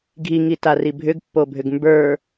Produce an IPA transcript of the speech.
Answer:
ɡʱ i ŋ i t a r i bʱ ʏ ɡ pː o bʱ ʏ ɡ m b ə˞

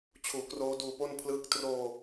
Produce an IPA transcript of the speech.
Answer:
t͡ɕʰ uː˨˩ k r oː˦˥ d uː˧ p o˥˩ n pʰ l ɯː˥˩ k̚ t r oː˧

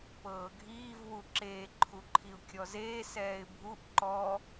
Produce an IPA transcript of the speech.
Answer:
p ɤː ɡʱ iː v w u ǁ eː ǃʰ u ǃʰ i ʊ̯ kʲ ɔ z eː s ɛː ɪ̯ bʱ u ʔ ǃ ɔ

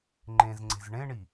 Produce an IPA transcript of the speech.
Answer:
ŋ͡ǃ ẽ z ŋ͡ǀ e̤ z ɳ ẽ ɳ i

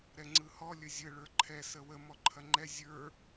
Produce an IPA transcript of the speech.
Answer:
ɾ ɛ ŋ͡ǀ ɯ h ɔ lʲ ə zʲ ə ɭ ə˞ ǃʰ ɛ s ə w ə m ɔ ǃʰ ɐ ŋ͡ǃ ɛ zʲ ə˞

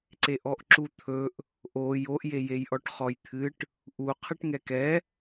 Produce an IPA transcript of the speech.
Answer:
ǀ e ʔ ɔ ʔ ǁ u t̪ʰ ɵ ʔ | ʔ o j o ʔ j e j e j ʔ ɔ ʈ χ ɔ j t̪ʰ ɨ ʈ | ʔ u qʰ ɨ ʈ ŋ ɛ k ɛ

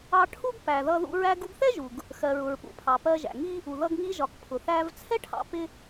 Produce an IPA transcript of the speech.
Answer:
ɑ˧ ʈʰ u˥ ɡ p æ˩ ð ʌ˧ ð ṵ˧ ɹ æ˧ ɡ u˧ ɡ θ ɛ˥ ʒ u˩ ɡ | x ɜ˩ ɹ ʊ˩ ɹ p ṵ˩ pʰ ɑ˩ p ɜ˧ ʒ æ̰˩ ŋ i˥ | u˩ ð ʌ˧ ɡ ŋ i˧ ʒ ɒ˩ k pʰ ʊ˩ θ æ˧ v t͡sʰ ɛ˥ ʈʰ ɑ̰˧ p ɪ˧

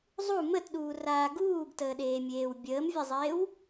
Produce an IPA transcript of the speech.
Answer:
zˤ u m ə t ɗ uː r aː ɡ uː ɡ t əː ɗ eː mʲ eː w bʲ əː m vʲ ə zˤ eː w

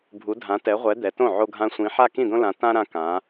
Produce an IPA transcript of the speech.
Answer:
bʱ u˨˦ dʱ ã˨˦ t ɛ˨˦ ʁʷ ɛ˨˦ d̪ ɛ˨˦ t õ˥˩ ʕ o˦ ɡʱ ã˦ sʷ ĩ˨˦ ħ a˥˩ k ĩ˥˩ d̪ õ˦ l ã˨˦ t ã˦ ɾ ã˦ k ã˨˦

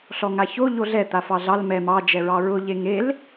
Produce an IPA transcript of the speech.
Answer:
ɬ ɔ ŋ a ç o ʎ o ɮ ɛ t̪ a f ɑ ɮ ɑ l m ɛ m ɑ d͡ʒ ɛ ɹ ɑ ɹ ʊ ʎ e ŋ e l

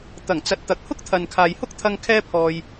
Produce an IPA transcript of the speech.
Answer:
t̪ ɐ˨˩ ŋ t͡s ɐ˨˥ t̚ t̪ ɐ˨ k̚ h ʊ˥ k̚ t̪ʰ ɐ˨ n kʰ aː˨ j h ʊ˥ k̚ t̪ʰ ɐ˧ ŋ kʰ ɛː˥ pʰ ɔː˧ j

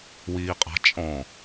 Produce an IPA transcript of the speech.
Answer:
w iː qʼ a̤ t͡ʃʼ ɔ̃

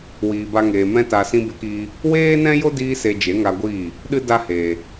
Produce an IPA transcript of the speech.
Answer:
w iː˨ b a˧ ŋ eː˨ m ɛ̃˧ t a˨ s ĩ˧ b e˦ k iː˦ | w eː˦ n ɛ̃˦ j o˦ d iː˧ s e˧ d͡ʒ e˨˦ ŋ a˧ ɡʷ iː˦˨ | ɗ ɨ˦ d a˦ h eː˨

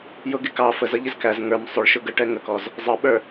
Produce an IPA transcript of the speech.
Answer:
j ʊ ɡ ɪ k ɑ f ə z ʌ ʎ ɪ z k æ z ŋ ə˞ m sˤ ʊ ɭ ʃ ʊ ɡ ə ʈ ɛ ŋ ə k ɔ z | zˤ ʌ ɓ ə˞

